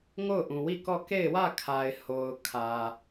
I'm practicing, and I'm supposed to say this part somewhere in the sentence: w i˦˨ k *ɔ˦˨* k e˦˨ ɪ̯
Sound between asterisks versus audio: correct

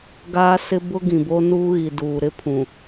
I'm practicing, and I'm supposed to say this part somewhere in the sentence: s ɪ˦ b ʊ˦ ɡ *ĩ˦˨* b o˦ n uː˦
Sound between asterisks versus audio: incorrect: ĩ˨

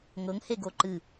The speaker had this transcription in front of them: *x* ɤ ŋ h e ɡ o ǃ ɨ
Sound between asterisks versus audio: incorrect: ŋ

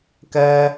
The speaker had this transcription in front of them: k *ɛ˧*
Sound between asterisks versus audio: correct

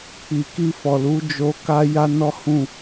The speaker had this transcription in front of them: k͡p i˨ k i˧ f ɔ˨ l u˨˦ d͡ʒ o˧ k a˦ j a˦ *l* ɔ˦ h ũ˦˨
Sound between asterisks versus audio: incorrect: n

